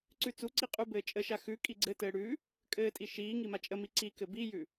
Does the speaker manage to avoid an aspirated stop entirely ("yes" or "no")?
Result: yes